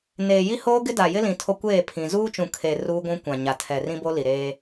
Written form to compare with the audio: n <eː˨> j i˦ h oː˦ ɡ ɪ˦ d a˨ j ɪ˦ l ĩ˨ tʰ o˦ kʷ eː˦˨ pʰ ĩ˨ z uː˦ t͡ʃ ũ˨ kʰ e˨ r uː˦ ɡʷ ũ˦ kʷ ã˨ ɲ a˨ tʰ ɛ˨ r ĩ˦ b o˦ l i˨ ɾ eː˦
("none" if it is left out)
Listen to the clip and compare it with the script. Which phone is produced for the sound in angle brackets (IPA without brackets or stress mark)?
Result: eː˨